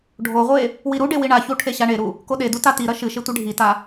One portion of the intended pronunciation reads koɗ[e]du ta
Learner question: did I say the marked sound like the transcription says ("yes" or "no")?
yes